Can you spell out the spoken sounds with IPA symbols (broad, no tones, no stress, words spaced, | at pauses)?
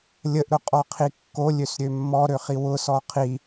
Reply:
lʲəʔɾʊqʼɔqʰi kːolʲøsɾʲø mːɔɾøχi wʊsɔ qʰi